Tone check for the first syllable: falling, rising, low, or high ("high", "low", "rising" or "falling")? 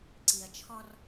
low